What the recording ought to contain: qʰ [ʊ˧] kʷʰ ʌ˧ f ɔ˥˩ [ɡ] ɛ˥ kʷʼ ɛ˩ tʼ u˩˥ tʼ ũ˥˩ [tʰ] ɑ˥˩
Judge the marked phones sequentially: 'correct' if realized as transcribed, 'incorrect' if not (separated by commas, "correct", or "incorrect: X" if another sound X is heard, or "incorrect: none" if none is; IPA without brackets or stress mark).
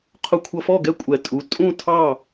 correct, correct, correct